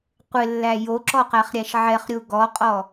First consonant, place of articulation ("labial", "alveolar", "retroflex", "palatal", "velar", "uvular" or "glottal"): uvular